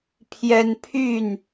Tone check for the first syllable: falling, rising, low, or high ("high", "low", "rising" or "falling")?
high